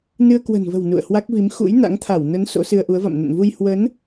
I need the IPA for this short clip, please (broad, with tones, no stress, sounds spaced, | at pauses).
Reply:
n ɨ˧ ə̯ k w ə̤˨˩ n v ə̤˨˩ w n ṵ˧˨ ə̯ h w a˦˥ k̚ v i˨˦ m x ṵ˧˥ j n a̰˧˥ ŋ t̪ʰ a˧˩ w n ə˨˦ n s o̰˧˥ s ɨ˧ ə̯ ʔ u˨˦ ə̯ v a̰˧˨ m n ə̰˧˨ n v u˧ j h w ə˨˦ n